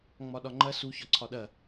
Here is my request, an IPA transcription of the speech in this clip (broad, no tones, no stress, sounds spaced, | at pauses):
ŋ͡m ɒ ɗ ɒ ŋ͡ǃ ɐ s u ç ɒ ǀʰ ɒ ɗ ɐ